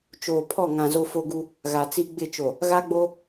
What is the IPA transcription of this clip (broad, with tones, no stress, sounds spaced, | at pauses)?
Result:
t͡ʃ oː˨ pʰ ɔ˦˨ ŋ ã˨ z o˦ f o˦ ɡ u˦ | ɣ a˨ t͡s i˦ ɡ͡b ɪ˦˨ t͡ʃ o˨ | ɣ a˦ ɡ͡b o˦